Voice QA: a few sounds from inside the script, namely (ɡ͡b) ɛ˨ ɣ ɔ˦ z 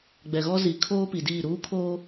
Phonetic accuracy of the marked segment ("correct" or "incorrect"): correct